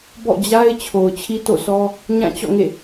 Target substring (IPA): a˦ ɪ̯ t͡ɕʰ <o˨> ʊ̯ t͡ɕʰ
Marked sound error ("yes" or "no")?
no